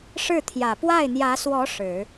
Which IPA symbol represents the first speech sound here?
ʂ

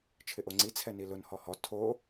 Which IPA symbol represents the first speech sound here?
t͡ʃʰ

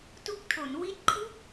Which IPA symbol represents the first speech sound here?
t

